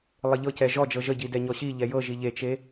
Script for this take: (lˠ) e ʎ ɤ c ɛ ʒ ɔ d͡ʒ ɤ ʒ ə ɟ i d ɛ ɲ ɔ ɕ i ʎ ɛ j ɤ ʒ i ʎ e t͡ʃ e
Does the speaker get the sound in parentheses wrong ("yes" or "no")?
no